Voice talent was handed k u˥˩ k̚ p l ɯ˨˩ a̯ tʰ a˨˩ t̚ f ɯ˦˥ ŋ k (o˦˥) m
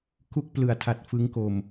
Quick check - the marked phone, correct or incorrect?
incorrect